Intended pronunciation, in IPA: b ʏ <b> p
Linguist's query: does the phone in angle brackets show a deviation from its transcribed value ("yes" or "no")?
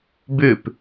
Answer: yes